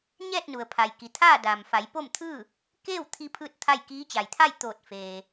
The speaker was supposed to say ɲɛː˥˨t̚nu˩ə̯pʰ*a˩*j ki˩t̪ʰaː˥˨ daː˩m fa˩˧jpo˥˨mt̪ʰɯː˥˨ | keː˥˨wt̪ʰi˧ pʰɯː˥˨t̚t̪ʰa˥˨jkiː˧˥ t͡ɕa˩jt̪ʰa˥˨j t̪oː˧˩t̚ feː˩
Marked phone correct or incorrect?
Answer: correct